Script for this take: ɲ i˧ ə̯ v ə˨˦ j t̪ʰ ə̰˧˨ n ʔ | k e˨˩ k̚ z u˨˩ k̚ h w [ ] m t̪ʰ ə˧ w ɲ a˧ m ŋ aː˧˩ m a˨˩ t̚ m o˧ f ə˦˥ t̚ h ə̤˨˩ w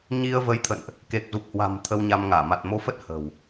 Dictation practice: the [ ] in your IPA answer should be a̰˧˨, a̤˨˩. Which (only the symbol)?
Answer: a̤˨˩